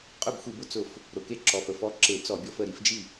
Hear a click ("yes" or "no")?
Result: yes